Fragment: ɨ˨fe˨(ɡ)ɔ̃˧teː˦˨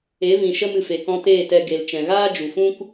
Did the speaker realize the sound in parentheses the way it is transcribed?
no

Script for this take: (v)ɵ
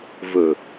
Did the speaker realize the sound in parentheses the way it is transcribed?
yes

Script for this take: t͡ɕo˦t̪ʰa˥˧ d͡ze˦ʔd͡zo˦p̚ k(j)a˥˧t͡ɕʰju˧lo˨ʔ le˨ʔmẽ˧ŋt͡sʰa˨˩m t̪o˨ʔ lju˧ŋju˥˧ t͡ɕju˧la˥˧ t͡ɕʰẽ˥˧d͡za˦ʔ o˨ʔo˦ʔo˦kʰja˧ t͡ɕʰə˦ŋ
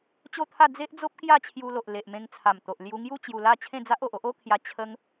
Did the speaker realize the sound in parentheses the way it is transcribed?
yes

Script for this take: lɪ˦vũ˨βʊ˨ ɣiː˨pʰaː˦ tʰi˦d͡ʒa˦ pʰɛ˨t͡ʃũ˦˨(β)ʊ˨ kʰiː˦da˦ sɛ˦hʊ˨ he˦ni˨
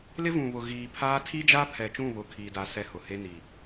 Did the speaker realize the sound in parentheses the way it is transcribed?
yes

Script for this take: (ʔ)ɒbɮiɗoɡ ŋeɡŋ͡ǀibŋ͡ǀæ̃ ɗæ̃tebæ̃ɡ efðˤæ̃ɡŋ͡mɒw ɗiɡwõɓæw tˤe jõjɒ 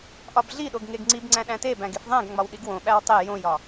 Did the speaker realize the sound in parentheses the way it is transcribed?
yes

